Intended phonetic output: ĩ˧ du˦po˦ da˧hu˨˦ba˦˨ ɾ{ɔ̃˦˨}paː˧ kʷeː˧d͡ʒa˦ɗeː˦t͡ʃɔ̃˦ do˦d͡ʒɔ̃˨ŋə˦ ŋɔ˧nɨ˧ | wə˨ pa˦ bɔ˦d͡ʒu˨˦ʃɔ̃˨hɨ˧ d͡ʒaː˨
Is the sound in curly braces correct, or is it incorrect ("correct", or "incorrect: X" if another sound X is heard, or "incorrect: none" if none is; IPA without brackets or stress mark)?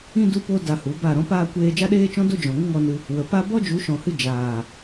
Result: incorrect: ɔ̃˧